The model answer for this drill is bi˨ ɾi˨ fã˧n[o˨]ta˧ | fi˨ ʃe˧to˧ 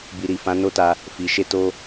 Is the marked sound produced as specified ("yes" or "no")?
no